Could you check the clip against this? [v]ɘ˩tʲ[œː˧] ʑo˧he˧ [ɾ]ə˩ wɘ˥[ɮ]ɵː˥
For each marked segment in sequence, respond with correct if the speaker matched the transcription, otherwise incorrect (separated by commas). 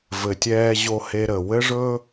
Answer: correct, incorrect, correct, incorrect